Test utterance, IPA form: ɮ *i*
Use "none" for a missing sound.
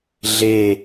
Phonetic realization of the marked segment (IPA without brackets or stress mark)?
e